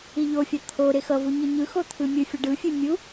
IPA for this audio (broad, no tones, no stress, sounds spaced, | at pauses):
i ʎ o fʲ a t̪ʰ o ɾ e x ʌ v u ɲ i ɲ ɯ x o t̪ʰ ɯ mʲ ɯ fʲ ʌ ɖ ɯ fʲ e mʲ u